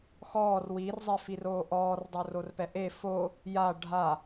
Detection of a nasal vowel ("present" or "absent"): absent